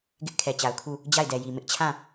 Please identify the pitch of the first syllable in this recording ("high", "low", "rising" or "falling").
high